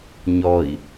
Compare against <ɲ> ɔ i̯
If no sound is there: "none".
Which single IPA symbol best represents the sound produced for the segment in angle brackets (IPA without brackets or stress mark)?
ɲ